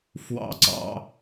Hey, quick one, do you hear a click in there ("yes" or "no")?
yes